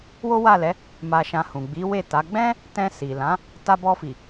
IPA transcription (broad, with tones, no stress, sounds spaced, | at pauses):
w o˦ w a˦˨ l ɛ˨˦ | m a˧ ʃ ã˧ h ũ˨ ɡ͡b i˨˦ w e˦˨ t a˨˦ ɡ͡b ɛ̃˦ | t ɛ̃˧ s i˨ l ã˨˦ | t a˧ b ɔ˧ f i˨